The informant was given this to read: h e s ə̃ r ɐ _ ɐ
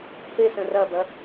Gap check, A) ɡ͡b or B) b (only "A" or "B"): B